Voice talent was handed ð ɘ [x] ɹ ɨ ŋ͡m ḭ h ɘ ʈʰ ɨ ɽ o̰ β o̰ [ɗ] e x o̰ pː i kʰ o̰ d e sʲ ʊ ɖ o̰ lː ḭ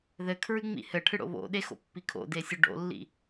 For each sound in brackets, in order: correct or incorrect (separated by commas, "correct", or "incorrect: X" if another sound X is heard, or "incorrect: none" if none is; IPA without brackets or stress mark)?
incorrect: kʰ, correct